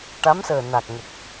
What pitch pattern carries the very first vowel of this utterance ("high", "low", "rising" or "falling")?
rising